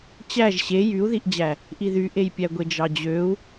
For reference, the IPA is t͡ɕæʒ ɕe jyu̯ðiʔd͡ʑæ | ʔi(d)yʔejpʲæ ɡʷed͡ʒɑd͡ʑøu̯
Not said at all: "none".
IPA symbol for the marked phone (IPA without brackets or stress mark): ð